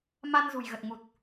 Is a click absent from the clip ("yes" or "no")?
yes